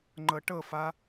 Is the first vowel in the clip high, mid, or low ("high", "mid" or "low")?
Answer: mid